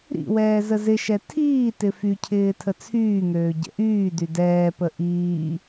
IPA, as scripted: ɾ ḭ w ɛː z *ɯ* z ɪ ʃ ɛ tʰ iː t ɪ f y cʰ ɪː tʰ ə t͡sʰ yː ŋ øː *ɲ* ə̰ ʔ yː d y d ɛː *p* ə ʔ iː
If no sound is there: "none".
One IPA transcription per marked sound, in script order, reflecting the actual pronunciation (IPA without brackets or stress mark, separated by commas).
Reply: ə, ɟ, p